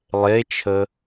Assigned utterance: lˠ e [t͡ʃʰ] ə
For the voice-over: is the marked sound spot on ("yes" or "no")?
yes